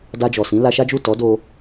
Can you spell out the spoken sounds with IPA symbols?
d a˧ d͡ʒ ɔ˨ s ĩ˨˦ l a˧ ʃ a˦ d͡ʒ u˦˨ t ɔ˨˦ d o˧

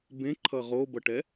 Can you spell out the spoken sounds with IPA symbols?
b ẽ ǃʰ ʌ ʁ o b ʌ ʈ ɛ

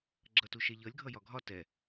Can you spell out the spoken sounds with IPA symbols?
ɡ͡ǁ ʌ t u ʃ ɛ ʎ ʌ lʲ ɡʱ ʌ j ɒ ɡʱ ɒ t ɛ

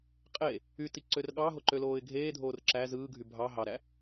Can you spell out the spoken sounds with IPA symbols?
qʼ e | y t i ǀ ø r ɠ ɑ ɦ o ǃ ø l oː ɪ̯ ɡʱ eː dʱ oː r ǁ æ z ɯː ɡʱ y bʱ ɑ ɦ ɑ ɾ æ

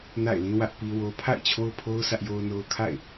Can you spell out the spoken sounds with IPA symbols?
n a̰˦˨ ɪ̯ l ĩ˦ w ä˦ ʔ p i˦ w o˦ pʰ a̰˦˨ ɪ̯ t͡ɕʰ o˦ ʊ̯ pʰ o˦ ʊ̯ s ä˦ ʔ j o˦ ʊ̯ n o˦ ʊ̯ kʰ a̰˦˨ ɪ̯

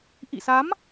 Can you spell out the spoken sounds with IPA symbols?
ʔ ḭ˧˨ s a˨˦ m

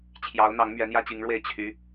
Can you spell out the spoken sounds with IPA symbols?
t͡ɕʰ j ɑ˧˥ ʊ̯ n̪ ɑ˧˥ ŋ m ɥ ɛ˧˥ n̪ j ä˥ t͡ɕ i˧˥ ŋ ɻ w e˥˩ ɪ̯ t͡ɕʰ y˧˥

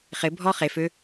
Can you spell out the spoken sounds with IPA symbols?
χ ɪ bʱ ɔ χ e f ø

